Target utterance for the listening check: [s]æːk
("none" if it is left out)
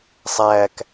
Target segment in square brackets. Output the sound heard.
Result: sˤ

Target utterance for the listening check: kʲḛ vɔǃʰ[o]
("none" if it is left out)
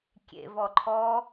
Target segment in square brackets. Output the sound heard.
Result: ɔ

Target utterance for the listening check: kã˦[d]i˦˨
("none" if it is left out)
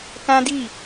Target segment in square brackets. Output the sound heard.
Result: d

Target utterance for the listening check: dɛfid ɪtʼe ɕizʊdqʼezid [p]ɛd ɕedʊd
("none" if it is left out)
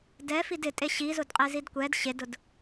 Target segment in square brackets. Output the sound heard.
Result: kʷ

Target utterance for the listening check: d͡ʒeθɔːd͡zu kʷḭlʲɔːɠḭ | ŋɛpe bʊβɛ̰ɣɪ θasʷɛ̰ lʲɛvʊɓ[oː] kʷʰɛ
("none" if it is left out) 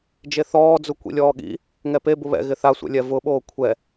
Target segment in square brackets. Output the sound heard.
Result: oː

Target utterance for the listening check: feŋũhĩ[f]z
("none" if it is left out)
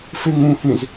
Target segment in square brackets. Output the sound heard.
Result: none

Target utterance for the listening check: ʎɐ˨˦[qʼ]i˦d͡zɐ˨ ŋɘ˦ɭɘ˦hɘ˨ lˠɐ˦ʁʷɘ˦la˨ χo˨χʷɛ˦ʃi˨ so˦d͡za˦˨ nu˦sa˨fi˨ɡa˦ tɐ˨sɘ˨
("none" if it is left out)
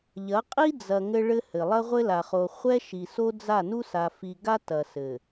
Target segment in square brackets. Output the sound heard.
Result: qʼ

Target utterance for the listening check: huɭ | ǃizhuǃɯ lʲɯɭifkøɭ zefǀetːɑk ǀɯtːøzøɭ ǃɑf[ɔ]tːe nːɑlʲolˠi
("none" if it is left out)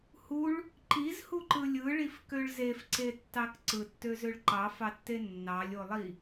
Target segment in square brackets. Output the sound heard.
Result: ɑ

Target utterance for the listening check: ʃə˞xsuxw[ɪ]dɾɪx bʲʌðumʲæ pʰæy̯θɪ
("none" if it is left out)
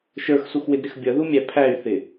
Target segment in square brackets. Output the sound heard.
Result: ɪ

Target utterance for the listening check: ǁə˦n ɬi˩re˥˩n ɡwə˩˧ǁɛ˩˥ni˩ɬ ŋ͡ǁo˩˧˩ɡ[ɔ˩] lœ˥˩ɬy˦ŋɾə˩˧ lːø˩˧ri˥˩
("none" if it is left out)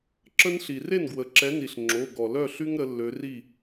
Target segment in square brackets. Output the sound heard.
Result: ɔ˩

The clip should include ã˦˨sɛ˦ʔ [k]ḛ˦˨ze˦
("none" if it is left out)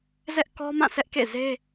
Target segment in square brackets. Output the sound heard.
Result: k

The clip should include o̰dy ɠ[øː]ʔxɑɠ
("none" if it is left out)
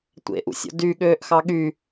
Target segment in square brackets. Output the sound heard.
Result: øː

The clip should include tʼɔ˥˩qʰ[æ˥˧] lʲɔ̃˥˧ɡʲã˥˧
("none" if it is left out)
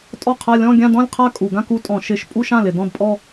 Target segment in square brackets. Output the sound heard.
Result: a˥˧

